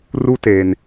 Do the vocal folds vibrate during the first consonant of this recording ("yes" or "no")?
yes